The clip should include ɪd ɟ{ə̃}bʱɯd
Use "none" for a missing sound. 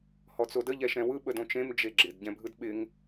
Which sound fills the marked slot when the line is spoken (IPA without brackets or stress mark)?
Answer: ɛ̃